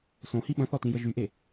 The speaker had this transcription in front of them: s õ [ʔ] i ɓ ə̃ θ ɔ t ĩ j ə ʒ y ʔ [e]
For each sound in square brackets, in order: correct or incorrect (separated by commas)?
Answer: incorrect, correct